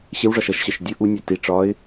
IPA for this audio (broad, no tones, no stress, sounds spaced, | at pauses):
ɕ ɪ w ʐ ɒ ʃ ʌ ʃ ɕ ɜ ʃ dʲ ʊ ʔ u nʲ ɔ t i ʈ͡ʂ ɒ ɪ̯